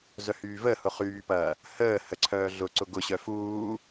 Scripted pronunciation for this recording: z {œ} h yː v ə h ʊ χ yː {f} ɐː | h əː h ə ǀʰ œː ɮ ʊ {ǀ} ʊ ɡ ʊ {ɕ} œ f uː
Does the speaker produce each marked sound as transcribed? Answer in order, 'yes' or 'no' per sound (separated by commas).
yes, no, yes, yes